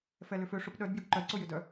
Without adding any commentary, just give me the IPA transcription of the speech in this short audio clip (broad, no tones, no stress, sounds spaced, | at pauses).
f ɛ l ʏ f ø ʂ ʊ p ɗ œ d b j ʏ ɡ ǃ œ d ǀ ʊ j ʏ d œ